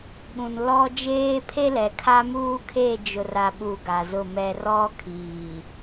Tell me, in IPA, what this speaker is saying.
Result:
ɓ ũ˨ n l ɔ˦ d͡ʒ eː˦ pʰ e˦ l ɛ˨ kʰ a˦ m uː˦ kʰ e˦˨ d͡ʒ ʊ˨ r a˨ ɓ u˨ ɡ a˨ z ʊ˦˨ m ɛ˦ r ɔ˦ kʰ iː˨

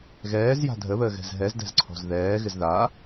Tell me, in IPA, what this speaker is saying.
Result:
ɣ ɛː z j a̤ dʱ ə β əː ɣ ɛ̤ z ɦ ɛ z d ɛ̤ z ǀʰ ɔ̤ z ð ɛː ɣ ɪ z ð a

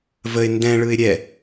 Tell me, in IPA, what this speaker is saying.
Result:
v ə ɪ̯ n d ɛ̃ ɭ ɯ ɪ̯ ɾʲ ɛ

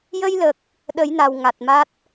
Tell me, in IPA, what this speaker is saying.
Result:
j ə˧ j l ə˨˩ k̚ | ɗ ə˨˩˦ j n a˨˩ w ŋ a˨˩ t̚ m a˦˥ t̚

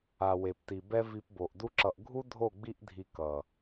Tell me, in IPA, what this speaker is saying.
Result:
a˨ w e˨ p t i˨ b ɛ˦ v i˧ p b o˨ ʔ d u˦ ǁ ʌ˧ ʔ ɡʱ u˦ dʱ o˦˨ ɡ͡b i˦ ʔ dʱ i˧ k ʌ˨

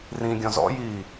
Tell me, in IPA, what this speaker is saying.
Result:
r ĩ ɡʲ ɔ̃ z ɔ̰ j iː

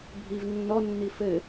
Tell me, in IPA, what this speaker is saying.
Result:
bʱ i v nː ɔ nː i f ɘ

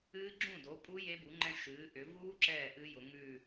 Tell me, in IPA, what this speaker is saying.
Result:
ɨː˦˥ ɡ͡ǁ ũ˥˩ d o˩˥ pʼ u˦˥ j e˦˥ b u˩˥ ŋ͡ǃ ɛ̃˦˥ ʃ ɨː˩˧ ʔ ʏ˩˧ v uː˦˥ ǁ ɛː˥˩ ʔ ɨ˦˥ j ʊ˩˧ ŋ ʉ˥˩

